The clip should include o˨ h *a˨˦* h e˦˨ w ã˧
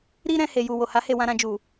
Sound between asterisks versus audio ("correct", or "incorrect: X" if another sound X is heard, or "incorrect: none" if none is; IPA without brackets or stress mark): correct